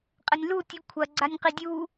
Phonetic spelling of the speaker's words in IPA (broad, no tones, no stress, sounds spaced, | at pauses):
qʼ ɘ nʲ l u tʲ u kʷʰ ɐ ɡ͡ǀ a nʲ q i dʲ u